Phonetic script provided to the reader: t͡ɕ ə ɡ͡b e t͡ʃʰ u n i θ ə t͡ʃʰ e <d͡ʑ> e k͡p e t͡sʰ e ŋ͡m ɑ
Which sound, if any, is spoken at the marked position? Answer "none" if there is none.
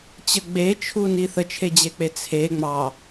d͡ʑ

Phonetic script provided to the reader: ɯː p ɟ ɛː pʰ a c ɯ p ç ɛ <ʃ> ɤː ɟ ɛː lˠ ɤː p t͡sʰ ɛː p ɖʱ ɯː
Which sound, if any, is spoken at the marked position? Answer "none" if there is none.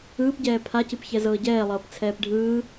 z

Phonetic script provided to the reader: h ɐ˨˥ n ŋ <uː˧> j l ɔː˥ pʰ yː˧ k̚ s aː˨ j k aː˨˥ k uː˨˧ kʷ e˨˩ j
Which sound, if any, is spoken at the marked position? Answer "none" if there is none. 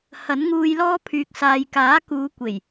uː˧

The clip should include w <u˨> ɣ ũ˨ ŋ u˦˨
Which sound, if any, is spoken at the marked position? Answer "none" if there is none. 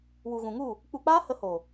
u˨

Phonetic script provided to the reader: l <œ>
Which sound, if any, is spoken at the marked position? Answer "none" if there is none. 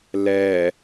ɛ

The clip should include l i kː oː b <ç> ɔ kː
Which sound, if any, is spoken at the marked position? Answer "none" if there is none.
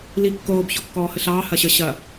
ç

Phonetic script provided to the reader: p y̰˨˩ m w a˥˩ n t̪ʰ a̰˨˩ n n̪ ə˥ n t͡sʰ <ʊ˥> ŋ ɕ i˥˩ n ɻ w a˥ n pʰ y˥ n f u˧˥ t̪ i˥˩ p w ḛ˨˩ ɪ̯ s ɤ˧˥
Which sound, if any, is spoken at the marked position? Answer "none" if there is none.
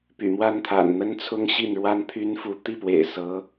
ʊ˥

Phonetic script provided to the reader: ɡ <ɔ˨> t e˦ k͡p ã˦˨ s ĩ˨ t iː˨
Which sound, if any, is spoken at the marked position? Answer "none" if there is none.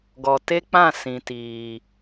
ɔ˨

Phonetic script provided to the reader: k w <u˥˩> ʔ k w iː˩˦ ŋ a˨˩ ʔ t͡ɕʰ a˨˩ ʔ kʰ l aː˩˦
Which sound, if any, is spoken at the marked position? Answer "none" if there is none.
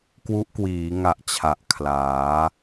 u˦˥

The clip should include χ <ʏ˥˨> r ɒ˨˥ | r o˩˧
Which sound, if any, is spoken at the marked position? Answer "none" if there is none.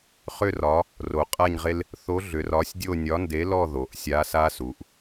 ʏ˥˨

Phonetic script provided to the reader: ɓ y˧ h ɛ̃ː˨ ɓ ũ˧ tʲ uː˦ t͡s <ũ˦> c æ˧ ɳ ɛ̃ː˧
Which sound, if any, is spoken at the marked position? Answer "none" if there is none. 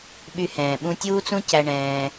ũ˦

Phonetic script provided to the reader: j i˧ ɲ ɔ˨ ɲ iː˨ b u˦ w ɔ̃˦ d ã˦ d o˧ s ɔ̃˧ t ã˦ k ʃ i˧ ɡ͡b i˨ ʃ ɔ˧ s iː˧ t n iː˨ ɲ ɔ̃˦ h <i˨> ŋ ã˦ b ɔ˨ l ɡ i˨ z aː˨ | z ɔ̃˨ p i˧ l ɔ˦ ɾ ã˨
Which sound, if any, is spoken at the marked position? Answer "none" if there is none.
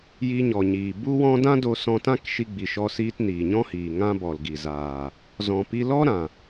iː˨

